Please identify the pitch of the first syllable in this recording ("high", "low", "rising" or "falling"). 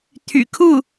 low